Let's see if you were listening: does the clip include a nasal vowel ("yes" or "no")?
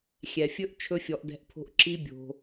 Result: no